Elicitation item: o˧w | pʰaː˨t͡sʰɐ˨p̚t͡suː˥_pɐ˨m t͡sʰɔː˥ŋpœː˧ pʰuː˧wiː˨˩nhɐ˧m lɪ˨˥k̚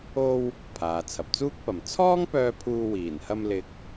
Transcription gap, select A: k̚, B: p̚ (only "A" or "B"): A